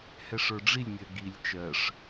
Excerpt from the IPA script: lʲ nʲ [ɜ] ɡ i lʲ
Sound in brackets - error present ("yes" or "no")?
no